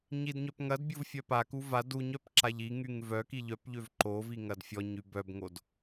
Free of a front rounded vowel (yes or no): no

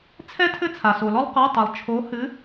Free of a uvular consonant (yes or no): no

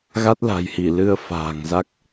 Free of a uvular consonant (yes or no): yes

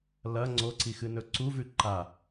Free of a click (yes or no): no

